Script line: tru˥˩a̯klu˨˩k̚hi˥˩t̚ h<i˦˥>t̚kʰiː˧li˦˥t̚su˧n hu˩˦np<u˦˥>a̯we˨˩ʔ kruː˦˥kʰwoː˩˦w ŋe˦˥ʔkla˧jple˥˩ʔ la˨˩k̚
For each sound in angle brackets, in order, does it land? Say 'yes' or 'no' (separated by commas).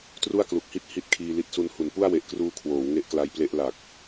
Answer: yes, no